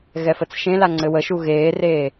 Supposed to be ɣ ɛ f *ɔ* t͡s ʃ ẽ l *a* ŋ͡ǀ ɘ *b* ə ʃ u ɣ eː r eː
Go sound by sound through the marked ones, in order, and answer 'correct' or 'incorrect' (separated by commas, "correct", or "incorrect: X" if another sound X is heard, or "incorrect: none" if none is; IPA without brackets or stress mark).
incorrect: ə, correct, incorrect: w